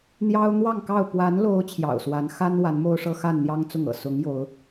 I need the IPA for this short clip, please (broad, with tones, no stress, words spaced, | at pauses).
n̪jɑ˦ʊ̯n̪wɑ˥˨ŋkɑ˥˨ʊ̯ pwa˨˦nlo˨˦ʊ̯ t͡ɕʰjɑ̰˨˩ʊ̯swa˨˦nxa˦n wa˨˦nmo˦ʊ̯ʂɤ˦ xa˥˨nn̪jɑ˦ŋ t͡sʊ˥˨ŋɤ̰˨˩ sʊ˨˦ŋ jo˨˦ʊ̯